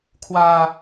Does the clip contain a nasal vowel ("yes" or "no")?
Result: no